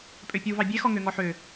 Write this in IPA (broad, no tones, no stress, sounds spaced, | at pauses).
pʼ ø pʲ u v ɑ bʲ e x ɔ ŋ ø ŋ ɔ ħ ø